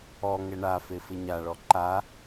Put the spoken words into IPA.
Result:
ɔ ŋɛɳafe fɪɲaɭɔ ǃa

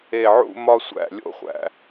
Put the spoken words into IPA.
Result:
e˧˩ʕṵ˥˧mɒ˥˧sʷæ̰˧˩ lʲo̰˥χʷæ̰˧

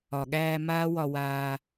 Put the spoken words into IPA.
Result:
ɒ˨ɠæː˧ maː˦ wɒ˧waː˧

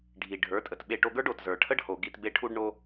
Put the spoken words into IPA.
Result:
ɖʱi˨ɖʱə˞˨˦tʼə˨t ɓe˧ʈo˧ɡə˞˦ɖ o˨tzə˞˨ʈʰə˦ɖho˨ ɡi˨t be˧ʈʰu˧ɖɳo˧

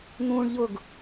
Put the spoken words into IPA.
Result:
n̪ũɳ ʎʊɡ

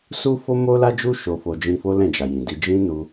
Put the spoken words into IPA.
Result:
su˦fo˦mo˦ la˦d͡ʒu˦ ʃo˧fo˧ d͡ʒĩ˧fo˦ lɛ̃˦˨d͡ʒa˨jĩ˨di˧ d͡ʒĩ˦nu˧

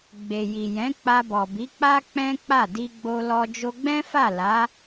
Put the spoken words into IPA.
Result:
ɡ͡be˨ji˨jɛ̃˨˦ k͡pa˧bɔ˨bi˨˦k͡pa˦ k͡pɛ̃˦k͡pa˦˨ di˧ɡ͡bo˧lɔ˧ d͡ʒo˧ɡ͡bɛ̃˦fa˦˨ la˨˦

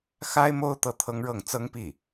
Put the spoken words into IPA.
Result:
xa˥ɪ̯mo˥ʊ̯ t̪ɤ˥˩t̪ʰɤ˥ŋɻɤ˥˩ŋ t͡sɤ˥ŋpi˥˩

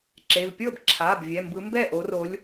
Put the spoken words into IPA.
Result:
ǁe˩˧˩v pʲɤ˥˩bǁʰa˩˧˩b vʲɛ˩˧˩mbɯ˨˦mbɛ˥˩ ʔo˨˦ro˨˦lʲ

